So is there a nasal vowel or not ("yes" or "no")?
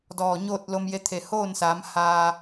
no